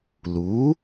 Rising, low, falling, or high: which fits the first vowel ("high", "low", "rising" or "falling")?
rising